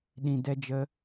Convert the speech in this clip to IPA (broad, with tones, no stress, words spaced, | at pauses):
ɗĩ˧ dɛ˦d͡ʒə˦